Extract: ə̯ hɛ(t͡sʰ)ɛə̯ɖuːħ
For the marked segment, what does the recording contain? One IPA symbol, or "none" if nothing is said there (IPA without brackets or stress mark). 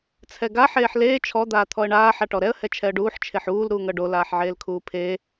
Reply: t͡ʃʰ